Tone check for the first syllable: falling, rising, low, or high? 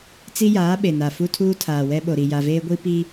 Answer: high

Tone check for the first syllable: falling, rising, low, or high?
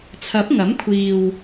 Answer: rising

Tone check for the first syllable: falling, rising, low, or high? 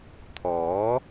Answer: rising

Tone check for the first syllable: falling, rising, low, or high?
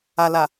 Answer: low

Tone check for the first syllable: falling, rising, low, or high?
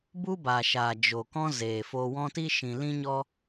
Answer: high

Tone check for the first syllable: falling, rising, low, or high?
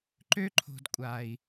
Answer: high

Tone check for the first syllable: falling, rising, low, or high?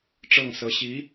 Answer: falling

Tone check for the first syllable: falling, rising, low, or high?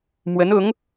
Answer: rising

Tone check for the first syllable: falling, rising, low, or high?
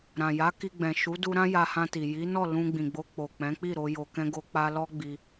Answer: low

